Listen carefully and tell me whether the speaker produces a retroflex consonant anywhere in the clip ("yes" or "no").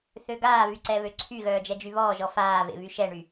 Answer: yes